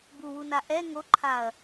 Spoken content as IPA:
b u w u n a ʔ ɛ ŋ o ǃʰ a ɐ̯

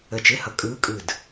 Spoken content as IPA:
ə˧˩ t͡ʃ ɪ˧˥˧ h ʌ˧˩ kʼ ɯː˧˥ kʼ ɯ˧˩ d

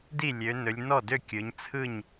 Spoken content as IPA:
d i˥˩ lʲ ø˩˧ n ɵ˩˧ lʲ n ɔ˥˩ d ø˥˩ kʲ ɯ˩˧ ɲ t͡sʰ ɯ˥˩ ɲ

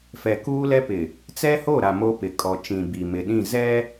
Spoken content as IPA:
f ɛ˨ k uː˦ l ɛ˦ p ɪ˨ | t͡s ɛ˦ h o˦˨ ɾ a˨ m o˦ p ɪ˨ kʼ ɔ˨ t͡ʃ ĩ˨ b i˨ m ɪ˨ ɗ ĩ˦˨ z ɛ˦

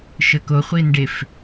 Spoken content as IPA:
ʃ ə k o χʷ i n ɖ e f

